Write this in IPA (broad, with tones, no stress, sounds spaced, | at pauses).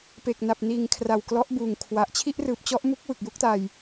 p e˨˩ k̚ n a˨˩ p̚ n iː˨˩ ŋ kʰ r a˨˩ w k l ɔ˦˥ ʔ b uː˨˩ ŋ kʰ w a˨˩ ʔ t͡ɕʰ i˥˩ ʔ r ɯː˨˩ p̚ t͡ɕ ɔ˦˥ ʔ m u˥˩ k̚ w ɯ˨˩ k̚ j u˦˥ k̚ t a˧ j